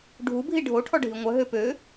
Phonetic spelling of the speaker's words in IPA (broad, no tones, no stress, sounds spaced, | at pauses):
ɖʱ u bʱ i ɖʱ o ʈʰ ɔ ɖʱ i ŋʷ œ ɦ ø p ø